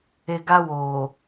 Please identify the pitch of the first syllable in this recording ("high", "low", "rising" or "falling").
low